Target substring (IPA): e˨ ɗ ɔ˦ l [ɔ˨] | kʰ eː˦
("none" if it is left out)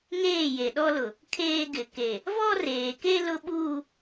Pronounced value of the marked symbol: ʊ˨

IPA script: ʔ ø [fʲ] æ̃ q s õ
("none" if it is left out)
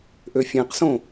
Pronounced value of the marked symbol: fʲ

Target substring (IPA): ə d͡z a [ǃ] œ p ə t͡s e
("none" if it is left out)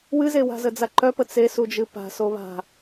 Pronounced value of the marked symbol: ǃ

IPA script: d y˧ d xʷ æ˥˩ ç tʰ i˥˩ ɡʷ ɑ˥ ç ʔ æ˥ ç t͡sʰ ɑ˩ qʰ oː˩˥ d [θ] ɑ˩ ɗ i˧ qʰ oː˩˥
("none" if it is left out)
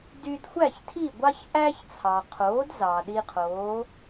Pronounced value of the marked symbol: z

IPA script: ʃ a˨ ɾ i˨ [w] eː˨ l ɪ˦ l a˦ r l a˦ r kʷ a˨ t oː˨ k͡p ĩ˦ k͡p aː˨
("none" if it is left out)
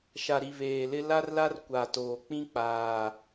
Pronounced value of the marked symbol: β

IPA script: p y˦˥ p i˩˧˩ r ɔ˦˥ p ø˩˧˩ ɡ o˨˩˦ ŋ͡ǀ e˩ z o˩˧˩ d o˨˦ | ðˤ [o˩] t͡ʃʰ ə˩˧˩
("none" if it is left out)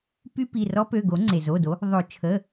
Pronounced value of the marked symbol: o˨˩˦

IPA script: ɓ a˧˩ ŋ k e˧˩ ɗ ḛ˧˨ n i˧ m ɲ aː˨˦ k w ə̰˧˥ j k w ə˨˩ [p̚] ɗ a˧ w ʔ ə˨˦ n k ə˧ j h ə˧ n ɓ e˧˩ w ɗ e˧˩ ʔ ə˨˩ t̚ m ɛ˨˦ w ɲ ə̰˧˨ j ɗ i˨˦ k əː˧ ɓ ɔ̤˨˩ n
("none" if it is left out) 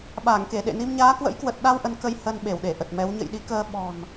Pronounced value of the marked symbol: t̚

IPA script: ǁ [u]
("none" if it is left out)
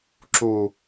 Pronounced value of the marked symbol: u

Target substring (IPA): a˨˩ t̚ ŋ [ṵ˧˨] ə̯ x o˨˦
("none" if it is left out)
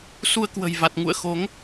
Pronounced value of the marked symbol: ṵ˧˨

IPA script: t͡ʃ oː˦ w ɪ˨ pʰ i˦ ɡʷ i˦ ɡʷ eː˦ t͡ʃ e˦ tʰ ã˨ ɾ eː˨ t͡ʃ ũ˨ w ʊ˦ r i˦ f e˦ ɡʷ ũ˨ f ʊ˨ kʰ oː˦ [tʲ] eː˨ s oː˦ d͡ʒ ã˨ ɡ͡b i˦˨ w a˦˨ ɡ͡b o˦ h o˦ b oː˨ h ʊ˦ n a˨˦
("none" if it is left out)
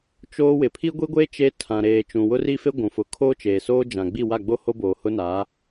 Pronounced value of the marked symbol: t͡ʃ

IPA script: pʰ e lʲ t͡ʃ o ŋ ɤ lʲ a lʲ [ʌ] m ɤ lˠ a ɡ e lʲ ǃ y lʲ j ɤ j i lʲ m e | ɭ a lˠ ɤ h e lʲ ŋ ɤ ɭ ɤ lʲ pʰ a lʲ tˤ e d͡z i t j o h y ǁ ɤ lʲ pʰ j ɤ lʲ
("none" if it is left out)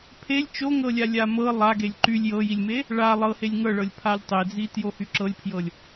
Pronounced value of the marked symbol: a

